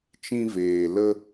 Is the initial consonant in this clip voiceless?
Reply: yes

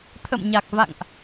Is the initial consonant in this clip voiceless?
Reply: yes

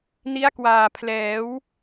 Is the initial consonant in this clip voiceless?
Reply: no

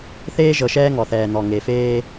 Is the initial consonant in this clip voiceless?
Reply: yes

